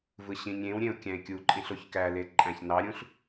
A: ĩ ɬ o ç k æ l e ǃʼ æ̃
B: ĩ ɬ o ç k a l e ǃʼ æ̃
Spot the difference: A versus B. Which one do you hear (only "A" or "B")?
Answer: A